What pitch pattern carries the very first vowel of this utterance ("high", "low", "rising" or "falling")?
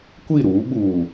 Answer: falling